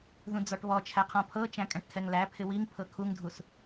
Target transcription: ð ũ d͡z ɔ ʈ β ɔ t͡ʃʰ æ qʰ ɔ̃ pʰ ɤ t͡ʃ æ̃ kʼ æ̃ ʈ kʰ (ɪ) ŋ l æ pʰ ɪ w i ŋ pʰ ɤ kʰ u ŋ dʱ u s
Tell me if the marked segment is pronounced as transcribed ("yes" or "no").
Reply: no